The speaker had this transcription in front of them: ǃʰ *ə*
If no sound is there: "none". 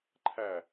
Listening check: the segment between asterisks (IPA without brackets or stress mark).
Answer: æ